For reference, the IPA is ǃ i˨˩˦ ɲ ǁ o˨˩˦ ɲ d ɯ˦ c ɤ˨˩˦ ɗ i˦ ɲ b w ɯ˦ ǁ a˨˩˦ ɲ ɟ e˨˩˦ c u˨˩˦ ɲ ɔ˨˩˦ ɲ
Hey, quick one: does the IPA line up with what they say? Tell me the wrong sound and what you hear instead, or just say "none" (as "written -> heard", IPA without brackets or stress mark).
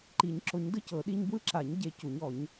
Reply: none